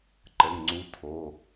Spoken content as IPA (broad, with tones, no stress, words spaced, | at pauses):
ǃə˩˧˩ŋŋ͡ǀu˨˦ tʰo˩˧˩